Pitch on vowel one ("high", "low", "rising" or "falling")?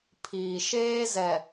low